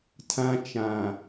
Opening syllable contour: high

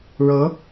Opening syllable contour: rising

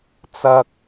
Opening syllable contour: low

